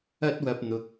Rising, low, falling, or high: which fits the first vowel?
high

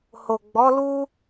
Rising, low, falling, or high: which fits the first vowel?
low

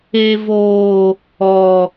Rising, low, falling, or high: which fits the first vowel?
high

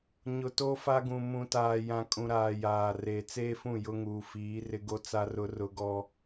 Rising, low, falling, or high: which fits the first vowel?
low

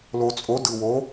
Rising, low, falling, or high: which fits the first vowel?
low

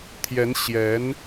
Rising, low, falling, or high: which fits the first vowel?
rising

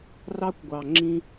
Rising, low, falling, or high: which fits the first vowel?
high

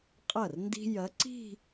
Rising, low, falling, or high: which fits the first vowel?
falling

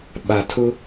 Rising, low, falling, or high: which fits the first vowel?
low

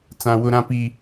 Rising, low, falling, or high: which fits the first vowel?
high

